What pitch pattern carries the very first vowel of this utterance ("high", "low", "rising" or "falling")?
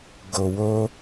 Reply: low